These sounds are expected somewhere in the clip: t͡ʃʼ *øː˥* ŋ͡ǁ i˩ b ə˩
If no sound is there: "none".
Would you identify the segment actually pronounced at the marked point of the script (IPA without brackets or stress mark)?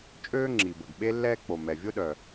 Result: øː˥